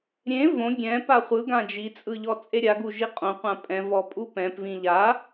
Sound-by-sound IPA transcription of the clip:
ɾʲ ẽ v õ ɡʲ ɛ̃ p a χʷ ɯ ɡ ã d͡ʒ i t͡sʼ ɯ ʎ ɔ t͡sʼ e ɾʲ a ɡ u ʒ i qʼ õ qʷ ã pʼ ɛ̃ v ɔ pʼ u p ɛ̃ p v ĩ ʎ a

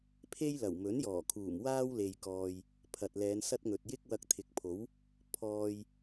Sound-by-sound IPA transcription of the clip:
pʰ e˥ j l ɐ˨˩ w m ɵ˨˥ n j ɔː˨˩ kʰ uː˨˩ m w aː˥ w l e˨ j k ɔː˨ j | pʰ ɐ˨ t̚ l ɛː˨˧ n s ɐ˥ t̚ ŋ ɵ˨ t̚ j ɪ˥ k̚ w ɐ˧ k̚ t̪ʰ ɪ˨ k̚ pʰ o˨˥ w | pʰ ɔː˨ j

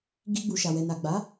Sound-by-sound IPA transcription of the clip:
ɡ i˧ ɡ͡b u˨ ʃ a˨ w ɛ˨ n a˨ ɡ͡b a˨˦

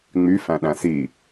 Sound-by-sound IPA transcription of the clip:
ŋ͡m y f æ̃ ɗ æ̃ s i

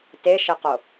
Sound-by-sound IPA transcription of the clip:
t e ʃ ɪ q o

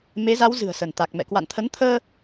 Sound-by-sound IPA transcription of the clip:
m e˨˦ z a˨˦ w z ɨ̤˨˩ ə̯ s ə˧˩ n t̪ a˨˩ k̚ m ɛ̰˧˨ k w a̰˧˨ n t̪ʰ ə˨˦ n t̪ʰ əː˧

